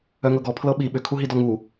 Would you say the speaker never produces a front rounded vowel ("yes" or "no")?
no